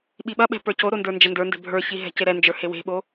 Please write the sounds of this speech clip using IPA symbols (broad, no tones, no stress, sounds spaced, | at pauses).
ɓ i ɓ ɐ ɓ ɛ̤ p ə˞ c o ɾ o n d ə˞ n d͡ʒ ɐ n d ə˞ n d ɛ̤ bʱ ə˞ ç i ɦ ɛ̤ c e ɾ ɛ n d͡ʒ ə˞ h e w e̤ ɓ o